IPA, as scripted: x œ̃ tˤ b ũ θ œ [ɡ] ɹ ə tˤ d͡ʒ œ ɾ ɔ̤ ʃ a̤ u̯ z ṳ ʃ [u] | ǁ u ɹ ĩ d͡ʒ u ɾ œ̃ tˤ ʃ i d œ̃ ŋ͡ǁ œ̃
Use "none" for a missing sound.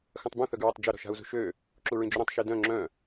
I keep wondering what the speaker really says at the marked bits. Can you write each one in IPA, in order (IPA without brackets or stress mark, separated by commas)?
ɡ, ø